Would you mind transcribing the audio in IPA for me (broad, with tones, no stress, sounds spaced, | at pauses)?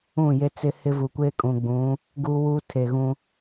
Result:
ũ˦˨ j e˦ t͡s ɪ˦ h ɪ˦ v u˨ kʷ eː˦ kʼ ũ˨ ɡ͡b ũ˨˦ | ɡ uː˦ w uː˦ tʰ e˨ ɣ ũ˦